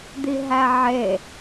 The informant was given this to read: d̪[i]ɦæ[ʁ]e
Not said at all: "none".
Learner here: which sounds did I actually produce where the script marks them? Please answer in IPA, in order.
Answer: i, ʕ

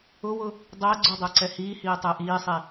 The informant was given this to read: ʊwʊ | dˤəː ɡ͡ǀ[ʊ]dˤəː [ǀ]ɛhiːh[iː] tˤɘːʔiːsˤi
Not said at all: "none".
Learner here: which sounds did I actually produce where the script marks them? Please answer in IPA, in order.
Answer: ʊ, ǀ, iː

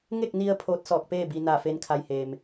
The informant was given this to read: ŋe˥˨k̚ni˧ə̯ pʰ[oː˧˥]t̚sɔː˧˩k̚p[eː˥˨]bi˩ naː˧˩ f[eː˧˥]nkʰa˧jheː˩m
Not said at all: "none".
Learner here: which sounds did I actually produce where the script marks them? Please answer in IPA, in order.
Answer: oː˧˥, eː˥˨, eː˧˥

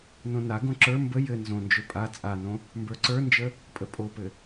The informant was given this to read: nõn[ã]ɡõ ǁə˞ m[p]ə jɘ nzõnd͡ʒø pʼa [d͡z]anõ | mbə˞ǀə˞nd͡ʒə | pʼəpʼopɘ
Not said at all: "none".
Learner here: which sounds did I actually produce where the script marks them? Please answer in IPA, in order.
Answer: a, b, t͡sʼ

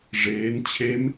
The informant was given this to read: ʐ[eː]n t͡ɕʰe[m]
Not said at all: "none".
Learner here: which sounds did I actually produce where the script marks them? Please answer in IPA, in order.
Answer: eː, m

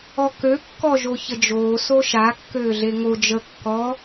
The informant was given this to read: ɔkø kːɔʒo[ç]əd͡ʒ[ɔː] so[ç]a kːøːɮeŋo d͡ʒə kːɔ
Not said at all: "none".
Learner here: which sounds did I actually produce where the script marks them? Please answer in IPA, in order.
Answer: ç, oː, ʃ

